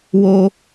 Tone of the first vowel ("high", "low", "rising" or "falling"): high